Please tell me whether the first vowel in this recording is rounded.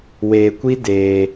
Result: no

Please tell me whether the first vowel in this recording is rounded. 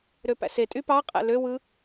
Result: yes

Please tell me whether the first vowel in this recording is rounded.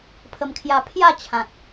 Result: no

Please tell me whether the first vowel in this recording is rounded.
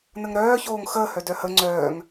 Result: no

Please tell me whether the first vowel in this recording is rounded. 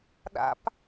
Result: no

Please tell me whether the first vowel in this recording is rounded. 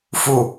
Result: yes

